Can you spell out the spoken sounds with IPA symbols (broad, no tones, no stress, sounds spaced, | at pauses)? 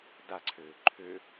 d a ǀʰ øː ǃʰ ø